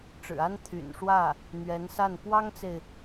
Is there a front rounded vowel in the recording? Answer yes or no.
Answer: yes